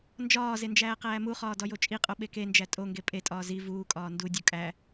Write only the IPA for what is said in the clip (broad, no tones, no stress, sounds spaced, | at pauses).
n d͡ʒ ɒː z e n d͡ʒ æː q æː m u χ ɒː d ɒ j o t͡ʃʼ i qʼ o ɓ e k e n d͡ʒ æ tʼ o ŋ ɡ e pʼ e tʼ ɒː z i v uː kʼ ɒː n d u dʲ u kʼ æ